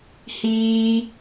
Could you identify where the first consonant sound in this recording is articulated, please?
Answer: glottal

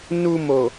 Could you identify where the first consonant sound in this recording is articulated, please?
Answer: alveolar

